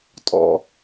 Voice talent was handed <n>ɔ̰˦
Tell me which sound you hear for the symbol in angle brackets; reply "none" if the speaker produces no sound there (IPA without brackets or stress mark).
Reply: tʼ